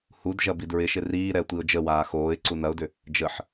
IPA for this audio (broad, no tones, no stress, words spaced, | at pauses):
hud ʒɐbidɹɪʃɪ riːɾɛə̯ tʷiʊ̯d͡ʒəwaː xoːɪ̯ ǀunɐʊ̯dʏ | d͡ʒəħ